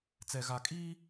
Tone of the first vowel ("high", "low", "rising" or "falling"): low